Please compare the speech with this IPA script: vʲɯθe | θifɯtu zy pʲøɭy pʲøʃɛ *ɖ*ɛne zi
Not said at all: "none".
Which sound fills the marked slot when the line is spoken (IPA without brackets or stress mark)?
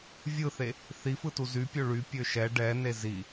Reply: ɖ